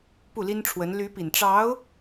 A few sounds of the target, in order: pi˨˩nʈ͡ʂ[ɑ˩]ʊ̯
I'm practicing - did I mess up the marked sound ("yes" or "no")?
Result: yes